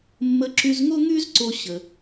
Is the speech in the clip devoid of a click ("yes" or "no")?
no